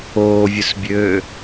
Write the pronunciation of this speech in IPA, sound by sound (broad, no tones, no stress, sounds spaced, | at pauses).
oː vʲ ʊ s bʲ øː